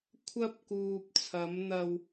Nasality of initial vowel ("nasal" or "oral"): oral